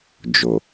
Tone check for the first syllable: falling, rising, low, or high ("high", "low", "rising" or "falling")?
low